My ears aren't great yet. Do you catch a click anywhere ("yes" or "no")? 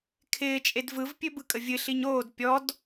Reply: no